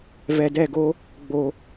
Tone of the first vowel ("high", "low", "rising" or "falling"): low